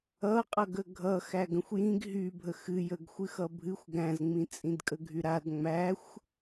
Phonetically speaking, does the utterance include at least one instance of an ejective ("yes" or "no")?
yes